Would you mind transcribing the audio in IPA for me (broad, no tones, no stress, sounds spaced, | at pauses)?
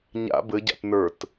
ɲ a̰ b ɘ ɟ a̰ t n ə˞ t